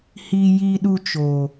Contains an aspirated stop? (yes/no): no